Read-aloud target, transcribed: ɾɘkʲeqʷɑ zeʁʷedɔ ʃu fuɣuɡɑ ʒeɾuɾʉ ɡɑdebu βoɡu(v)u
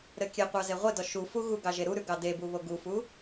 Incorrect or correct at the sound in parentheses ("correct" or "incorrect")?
incorrect